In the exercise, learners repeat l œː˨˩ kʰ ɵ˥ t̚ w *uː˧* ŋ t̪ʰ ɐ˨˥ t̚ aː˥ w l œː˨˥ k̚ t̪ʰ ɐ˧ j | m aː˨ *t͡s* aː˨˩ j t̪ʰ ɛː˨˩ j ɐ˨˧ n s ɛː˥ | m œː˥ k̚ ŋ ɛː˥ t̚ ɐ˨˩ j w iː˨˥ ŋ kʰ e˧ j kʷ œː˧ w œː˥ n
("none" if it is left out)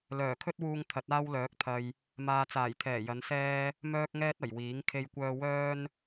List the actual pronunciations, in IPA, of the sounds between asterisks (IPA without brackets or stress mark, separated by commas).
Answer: uː˧, t͡s